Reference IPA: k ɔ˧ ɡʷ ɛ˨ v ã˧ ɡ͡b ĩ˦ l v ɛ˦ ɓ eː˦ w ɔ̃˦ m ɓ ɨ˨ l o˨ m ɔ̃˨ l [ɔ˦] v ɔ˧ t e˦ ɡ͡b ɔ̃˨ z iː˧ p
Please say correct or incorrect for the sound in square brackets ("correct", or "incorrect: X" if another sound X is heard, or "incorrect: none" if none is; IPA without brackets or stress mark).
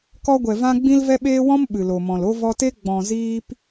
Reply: incorrect: o˦